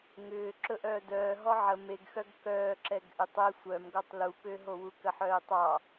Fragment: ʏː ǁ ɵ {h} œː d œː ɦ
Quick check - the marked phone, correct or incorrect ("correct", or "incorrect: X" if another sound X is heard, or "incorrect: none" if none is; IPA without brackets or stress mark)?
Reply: incorrect: ʔ